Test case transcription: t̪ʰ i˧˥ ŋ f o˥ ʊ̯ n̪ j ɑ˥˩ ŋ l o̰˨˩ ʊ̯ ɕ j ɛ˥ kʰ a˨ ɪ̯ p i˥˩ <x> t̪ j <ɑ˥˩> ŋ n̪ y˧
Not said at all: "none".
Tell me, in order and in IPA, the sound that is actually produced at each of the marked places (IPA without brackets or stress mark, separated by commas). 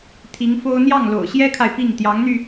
ŋ, ɑ˧˥